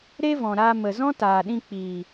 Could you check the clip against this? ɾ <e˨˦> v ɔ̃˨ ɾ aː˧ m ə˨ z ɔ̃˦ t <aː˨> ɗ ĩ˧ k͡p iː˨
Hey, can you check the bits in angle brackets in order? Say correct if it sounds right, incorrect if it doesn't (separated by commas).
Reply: incorrect, correct